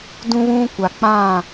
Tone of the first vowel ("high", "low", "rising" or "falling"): high